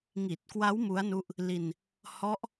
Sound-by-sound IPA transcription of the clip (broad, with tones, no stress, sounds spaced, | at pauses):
ŋ i˨˩ t̚ k w a˦˥ w m u˦˥ a̯ n u˦˥ ʔ | l i˧ n | h ɔ˦˥ ʔ